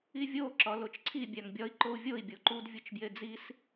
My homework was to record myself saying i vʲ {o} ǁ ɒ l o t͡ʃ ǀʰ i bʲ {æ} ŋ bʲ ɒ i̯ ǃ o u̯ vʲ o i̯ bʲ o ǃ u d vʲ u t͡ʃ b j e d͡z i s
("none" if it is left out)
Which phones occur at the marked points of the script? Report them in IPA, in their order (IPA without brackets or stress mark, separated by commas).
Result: o, æ